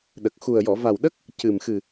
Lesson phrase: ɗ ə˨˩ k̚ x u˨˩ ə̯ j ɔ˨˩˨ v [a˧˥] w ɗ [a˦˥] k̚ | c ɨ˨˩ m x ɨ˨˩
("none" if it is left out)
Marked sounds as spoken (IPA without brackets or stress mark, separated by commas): a˨˩, ə˦˥